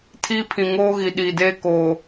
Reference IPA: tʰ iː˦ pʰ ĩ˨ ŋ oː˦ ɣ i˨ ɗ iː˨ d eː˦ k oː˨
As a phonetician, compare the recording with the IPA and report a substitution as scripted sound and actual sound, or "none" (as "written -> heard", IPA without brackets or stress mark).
none